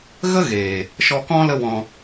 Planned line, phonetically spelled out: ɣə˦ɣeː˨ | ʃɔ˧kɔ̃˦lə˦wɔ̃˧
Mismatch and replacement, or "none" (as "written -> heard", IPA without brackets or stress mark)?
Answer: none